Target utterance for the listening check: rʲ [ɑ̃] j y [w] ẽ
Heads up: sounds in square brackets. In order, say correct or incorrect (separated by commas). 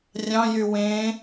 correct, correct